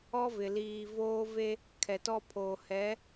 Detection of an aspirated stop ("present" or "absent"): present